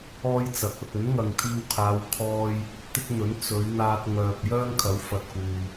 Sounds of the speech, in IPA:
ɔː˥ j t͡s ɐ˨˥ k̚ ɐ˨ t̚ ɵ˨˥ n ŋ ɐ˨ ŋ t̪ʰ iː˧ w kʰ aː˨˧ w kʰ ɔː˧ j | t̪ ɪ˥ k̚ n̪ ɵ˨˥ n t͡s ɵ˨˧ ɥ n̪ aː˧ t̚ ŋ œː˨ p̚ j œː˥ ŋ kʰ ɐ˨˥ w f ɐ˨ t̚ k uː˨

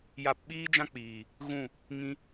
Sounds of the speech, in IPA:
j a˧ p ɓ iː˦ d͡ʒ ã˦ k͡p iː˨ | ɣ ũ˦˨ | ŋ ĩ˦

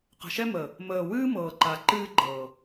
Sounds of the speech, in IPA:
q ə̤˨ ʃ ɛ˦ m ə˨ | m əː˨ w ɨː˦ m ɤː˨ ǃ a˨ ǃ ɨː˦ ɡ͡ǃ ɤː˨

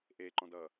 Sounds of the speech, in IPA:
ʔ e ǃ ɔ̃ d ʌ

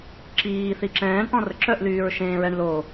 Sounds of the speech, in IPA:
ǁ iː θ i ǁ ɛ̃ː ɳ ʔ ɔ̃ r ə ǁ œ ʔ l yː ɹ ʃ ẽː ɹ ɛ ɳ l o

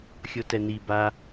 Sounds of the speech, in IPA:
xʲ o t ɛ n i b a

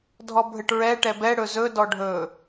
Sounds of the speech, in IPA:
dʱ ɔ bʱ ɘ ʈ ɹ ɛ ʈ ɛ b ɛ ɽ ɵ z ɵ d ɔ ɖʱ ɵ

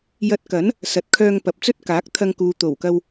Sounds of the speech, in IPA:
j ɐ˧ t̚ k ɐ˨˥ n | s ɐ˨ t̚ kʰ œː˧ ŋ p ɐ˨˥ p̚ t͡s ɵ˥ t̚ k aː˨˥ k̚ t̪ʰ ɐ˧ ŋ k uː˨ t̪ o˨˩ w k ɐ˧ w

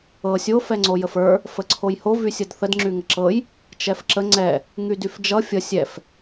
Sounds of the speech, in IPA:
ɤ sʲ o f ɛ ŋ͡ǀ o j ə f ə˞ | f ə ǀʰ o j h o v y sʲ ʌ d θ ə d ŋ͡ǁ y ŋ ə ǁ ɤ j | t͡ʃ ɛ f ǁ ə ŋ͡ǀ ɛ | ŋ y d y f d͡ʒ ʌ fʲ ʌ sʲ ɛ f

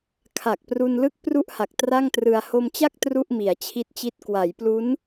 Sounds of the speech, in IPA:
kʰ a˨˩ k̚ p r u˧ n l ɯ˥˩ k̚ p r u˥˩ ʔ h a˨˩ k̚ t r a˥˩ ŋ t r ɯ˧ a̯ h o˧ m t͡ɕ a˥˩ k̚ t r u˥˩ ʔ m i˩˦ a̯ t͡ɕʰ i˦˥ t̚ t͡ɕ i˦˥ t̚ k w a˩˦ j p l u˦˥ n

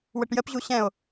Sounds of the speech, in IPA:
w ə ʈ j ə p ʑ u ɕ ɛ̃ o̯

